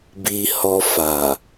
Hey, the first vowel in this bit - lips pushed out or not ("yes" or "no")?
no